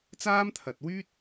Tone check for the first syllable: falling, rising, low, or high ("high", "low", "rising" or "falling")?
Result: high